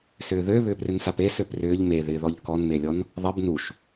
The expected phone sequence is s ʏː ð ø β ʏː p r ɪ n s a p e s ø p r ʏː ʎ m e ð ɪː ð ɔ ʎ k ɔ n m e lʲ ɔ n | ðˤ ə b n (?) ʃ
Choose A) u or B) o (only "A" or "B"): A